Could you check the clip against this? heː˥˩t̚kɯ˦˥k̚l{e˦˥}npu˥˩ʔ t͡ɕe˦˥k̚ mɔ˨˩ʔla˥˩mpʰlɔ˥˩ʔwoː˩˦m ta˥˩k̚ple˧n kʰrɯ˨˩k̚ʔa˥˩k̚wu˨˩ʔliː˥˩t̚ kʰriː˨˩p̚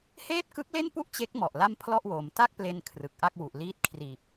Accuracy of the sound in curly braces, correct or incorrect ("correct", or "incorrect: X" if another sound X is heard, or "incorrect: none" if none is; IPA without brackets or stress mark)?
incorrect: e˥˩